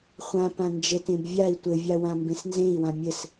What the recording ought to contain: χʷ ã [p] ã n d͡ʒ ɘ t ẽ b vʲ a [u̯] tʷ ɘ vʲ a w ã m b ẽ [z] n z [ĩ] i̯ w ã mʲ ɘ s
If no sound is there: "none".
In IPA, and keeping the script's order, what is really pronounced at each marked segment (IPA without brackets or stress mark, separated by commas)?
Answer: p, i̯, s, ẽ